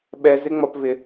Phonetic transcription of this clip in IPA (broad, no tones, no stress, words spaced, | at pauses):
ɓɛz ɪŋ͡mɒpvɪ